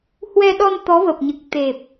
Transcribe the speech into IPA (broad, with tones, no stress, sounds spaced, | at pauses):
h w ɛ˧ ɗ ɔ˧ n t̪ ɔ˨˦ v ə˨˩ p̚ ɲ ɨ˨˩ k̚ t̪ e˨˩ p̚